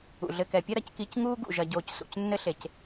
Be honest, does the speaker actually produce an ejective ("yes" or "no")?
no